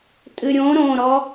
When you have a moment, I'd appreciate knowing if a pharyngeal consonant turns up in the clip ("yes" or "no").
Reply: no